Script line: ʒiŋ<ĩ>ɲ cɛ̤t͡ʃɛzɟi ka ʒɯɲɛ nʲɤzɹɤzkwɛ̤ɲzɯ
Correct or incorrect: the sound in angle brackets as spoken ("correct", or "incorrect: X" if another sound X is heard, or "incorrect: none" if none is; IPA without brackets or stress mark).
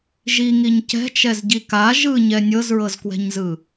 incorrect: i